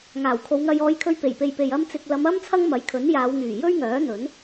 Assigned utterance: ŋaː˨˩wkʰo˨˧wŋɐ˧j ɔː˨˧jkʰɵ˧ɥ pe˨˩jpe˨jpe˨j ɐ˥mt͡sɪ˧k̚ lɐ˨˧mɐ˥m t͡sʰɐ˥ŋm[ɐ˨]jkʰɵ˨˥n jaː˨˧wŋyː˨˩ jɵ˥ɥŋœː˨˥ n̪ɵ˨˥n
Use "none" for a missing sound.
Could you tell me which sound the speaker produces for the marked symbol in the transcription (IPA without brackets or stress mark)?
ɐ˨˥